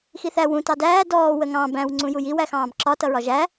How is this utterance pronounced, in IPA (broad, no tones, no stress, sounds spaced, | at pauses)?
x i θ æ w ũ t ɑ d æː d ɔː w ə ŋ ɑ̃ b æ̃ w ŋ͡ǀ ũ j u j i w æ x ɑ̃ː b ǁ ɒ t ʌ ɹ ɒ ʒ æ